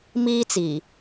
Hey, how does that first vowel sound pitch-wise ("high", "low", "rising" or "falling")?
high